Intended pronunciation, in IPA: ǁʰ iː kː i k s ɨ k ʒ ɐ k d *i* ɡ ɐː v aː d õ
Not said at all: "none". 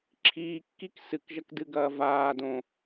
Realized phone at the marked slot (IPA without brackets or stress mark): ɨ